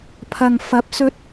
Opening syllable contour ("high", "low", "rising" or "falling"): low